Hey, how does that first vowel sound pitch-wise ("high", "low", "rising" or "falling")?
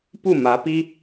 falling